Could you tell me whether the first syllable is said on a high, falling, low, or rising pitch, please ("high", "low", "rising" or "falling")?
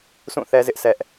falling